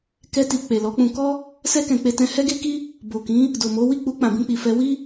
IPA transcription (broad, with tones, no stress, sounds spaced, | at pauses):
k ɛ˧ t i˨ k͡p e˨ l ɔ˨˦ k͡p ũ˧ k ɔ˦ | s ɛ˧ k ɛ̃˨ k͡p e˧ t ɛ̃˧ h ɛ˦ ɡ e˦ k i˦ | b o˨ k ĩ˨˦ | d o˨ m o˨˦ w i˦˨ k͡p u˧ k͡p ã˨ b ĩ˧ k͡p i˨ f ɛ˧ w i˦